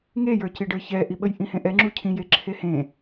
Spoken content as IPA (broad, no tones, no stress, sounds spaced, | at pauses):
ŋ e j ə˞ c i ɖ ə˞ ç ɛ ʔ i ɓ ə j ʔ ĩ h ẽ ʔ ɛ ŋ͡ǁ u cʰ ĩ j e ǁʰ e h ẽ